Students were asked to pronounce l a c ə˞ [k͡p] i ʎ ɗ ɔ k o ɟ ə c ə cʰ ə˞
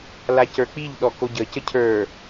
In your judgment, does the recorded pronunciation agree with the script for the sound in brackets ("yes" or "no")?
yes